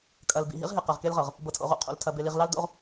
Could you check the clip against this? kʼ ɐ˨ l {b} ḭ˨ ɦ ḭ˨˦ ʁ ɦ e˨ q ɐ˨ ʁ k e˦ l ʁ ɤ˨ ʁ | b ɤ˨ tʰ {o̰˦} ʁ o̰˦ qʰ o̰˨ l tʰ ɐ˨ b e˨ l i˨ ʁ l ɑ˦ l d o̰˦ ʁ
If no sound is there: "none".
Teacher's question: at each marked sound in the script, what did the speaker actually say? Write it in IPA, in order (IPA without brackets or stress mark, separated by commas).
b, o̰˨